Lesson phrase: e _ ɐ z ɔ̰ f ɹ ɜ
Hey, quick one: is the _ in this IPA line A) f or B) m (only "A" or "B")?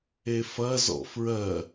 A